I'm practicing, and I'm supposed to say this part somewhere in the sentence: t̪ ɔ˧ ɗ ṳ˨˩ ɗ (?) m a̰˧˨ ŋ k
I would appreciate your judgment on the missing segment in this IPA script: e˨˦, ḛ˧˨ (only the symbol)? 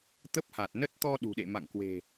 ḛ˧˨